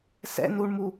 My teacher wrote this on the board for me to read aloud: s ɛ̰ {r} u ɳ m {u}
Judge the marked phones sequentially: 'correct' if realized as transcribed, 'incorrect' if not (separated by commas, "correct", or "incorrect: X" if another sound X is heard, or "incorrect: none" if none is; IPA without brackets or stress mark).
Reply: incorrect: n, correct